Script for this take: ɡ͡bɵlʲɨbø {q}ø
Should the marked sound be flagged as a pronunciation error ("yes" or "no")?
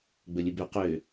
no